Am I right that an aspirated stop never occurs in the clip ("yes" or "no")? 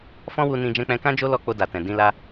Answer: yes